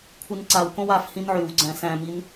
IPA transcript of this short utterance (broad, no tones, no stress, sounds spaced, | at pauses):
kʷʰ ɨ n ǀ a w k õ w a f h ĩ n ʕ y w ɡ͡ǀ æ̃ s æ̃ m i n